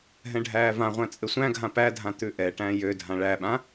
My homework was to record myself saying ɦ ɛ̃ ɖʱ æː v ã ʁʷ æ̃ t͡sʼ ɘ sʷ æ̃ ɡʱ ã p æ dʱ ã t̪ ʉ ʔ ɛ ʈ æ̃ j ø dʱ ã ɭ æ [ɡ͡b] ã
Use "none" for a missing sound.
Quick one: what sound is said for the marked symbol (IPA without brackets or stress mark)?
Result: ɓ